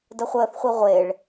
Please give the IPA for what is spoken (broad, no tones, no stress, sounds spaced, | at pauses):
d ə χʷ əː θ χʷ i ʁʷ e ɭ